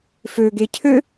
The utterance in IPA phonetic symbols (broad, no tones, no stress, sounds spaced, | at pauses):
f ø ɡ e cʰ ø